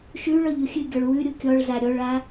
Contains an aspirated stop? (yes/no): no